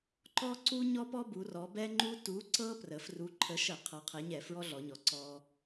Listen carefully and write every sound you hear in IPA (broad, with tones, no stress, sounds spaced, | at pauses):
ǃ ɔ˦ ǀ u˦ ɲ ɔ˦ p ɔ˦ b u˩˧ r ɔ˩˧ b ɛ˦ ŋ͡ǃ u˦ t u˨˥ ǀ ɤ˦ p r ə˩˧ f r u˨˥ ǃʰ ə˨˥ ʃ ə˧˩˧ qʰ ɤ˨˥ qʰ ɛ˨˥ ɲ ɛ˧˩˧ f ɹ ɔ˦ ɮ ɔ˩˧ ɲ ɔ˩˧ ǀ ɔ˦